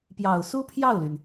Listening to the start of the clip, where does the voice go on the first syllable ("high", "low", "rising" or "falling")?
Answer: low